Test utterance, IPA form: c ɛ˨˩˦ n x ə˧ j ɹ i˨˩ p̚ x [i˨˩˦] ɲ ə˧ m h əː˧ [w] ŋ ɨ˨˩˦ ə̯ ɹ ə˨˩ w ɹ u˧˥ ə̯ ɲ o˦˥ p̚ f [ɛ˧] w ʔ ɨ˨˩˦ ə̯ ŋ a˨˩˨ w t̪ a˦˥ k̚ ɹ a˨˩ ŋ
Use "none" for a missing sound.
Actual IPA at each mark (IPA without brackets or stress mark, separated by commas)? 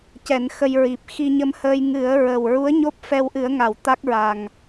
i˧, j, ɛ˧